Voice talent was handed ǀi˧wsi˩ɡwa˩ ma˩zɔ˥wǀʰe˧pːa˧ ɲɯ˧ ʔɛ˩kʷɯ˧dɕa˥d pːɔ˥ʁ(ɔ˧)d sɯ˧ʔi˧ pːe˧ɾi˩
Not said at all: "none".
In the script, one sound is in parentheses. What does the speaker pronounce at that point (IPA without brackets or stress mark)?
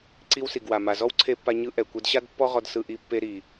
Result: ɔ˧